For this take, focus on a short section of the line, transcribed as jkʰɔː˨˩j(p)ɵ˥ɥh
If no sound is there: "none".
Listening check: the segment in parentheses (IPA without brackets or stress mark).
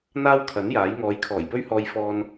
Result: p